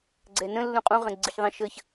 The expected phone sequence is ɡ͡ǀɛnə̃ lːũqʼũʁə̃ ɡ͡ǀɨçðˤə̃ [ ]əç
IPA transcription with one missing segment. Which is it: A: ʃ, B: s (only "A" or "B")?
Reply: A